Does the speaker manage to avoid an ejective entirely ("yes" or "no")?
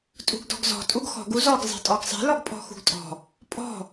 no